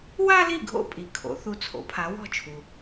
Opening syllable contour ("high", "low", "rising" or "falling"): high